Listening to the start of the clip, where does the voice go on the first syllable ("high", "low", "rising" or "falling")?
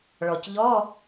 low